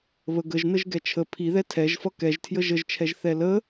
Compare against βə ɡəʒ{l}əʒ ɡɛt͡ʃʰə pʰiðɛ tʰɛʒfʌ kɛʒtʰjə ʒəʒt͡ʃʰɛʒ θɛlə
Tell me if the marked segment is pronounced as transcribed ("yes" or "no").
no